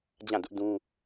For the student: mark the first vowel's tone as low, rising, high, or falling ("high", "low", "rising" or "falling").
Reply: falling